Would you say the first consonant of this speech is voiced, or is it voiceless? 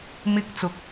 voiced